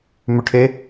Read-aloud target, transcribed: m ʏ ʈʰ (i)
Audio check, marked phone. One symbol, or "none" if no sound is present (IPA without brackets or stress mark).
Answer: e